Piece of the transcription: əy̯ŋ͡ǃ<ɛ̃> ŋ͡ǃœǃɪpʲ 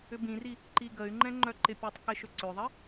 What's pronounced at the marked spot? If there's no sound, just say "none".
ɛ̃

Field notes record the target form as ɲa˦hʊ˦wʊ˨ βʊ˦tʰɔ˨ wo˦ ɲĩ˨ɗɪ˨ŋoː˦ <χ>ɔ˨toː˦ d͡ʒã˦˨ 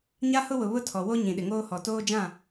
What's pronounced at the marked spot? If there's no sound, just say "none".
h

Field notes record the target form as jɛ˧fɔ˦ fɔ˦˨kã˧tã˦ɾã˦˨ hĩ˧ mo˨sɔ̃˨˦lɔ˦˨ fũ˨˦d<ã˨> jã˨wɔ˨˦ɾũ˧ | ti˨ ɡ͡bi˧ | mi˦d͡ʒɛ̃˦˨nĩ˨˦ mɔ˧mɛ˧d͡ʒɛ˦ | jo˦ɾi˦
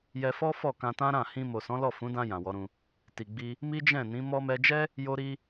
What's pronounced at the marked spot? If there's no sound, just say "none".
ã˧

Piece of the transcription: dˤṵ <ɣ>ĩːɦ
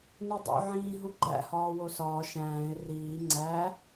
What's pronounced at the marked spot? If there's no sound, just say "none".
ʕ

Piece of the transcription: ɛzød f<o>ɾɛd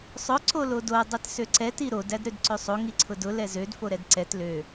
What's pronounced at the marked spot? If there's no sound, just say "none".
o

